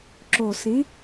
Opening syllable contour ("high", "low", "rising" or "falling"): low